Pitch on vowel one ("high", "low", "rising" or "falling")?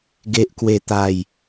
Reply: low